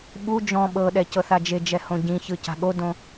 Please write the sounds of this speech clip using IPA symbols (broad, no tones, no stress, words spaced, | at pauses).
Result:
ɓu d͡ʒɔ̃ ɓɤɗɛ cɤθad͡ʒed͡ʒɛ hõɟĩçɯ ca̤ɠodõ